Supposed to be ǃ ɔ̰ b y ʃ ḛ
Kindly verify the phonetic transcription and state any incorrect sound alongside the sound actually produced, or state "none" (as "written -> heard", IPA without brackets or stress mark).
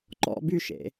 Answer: none